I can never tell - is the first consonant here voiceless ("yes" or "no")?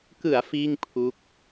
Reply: yes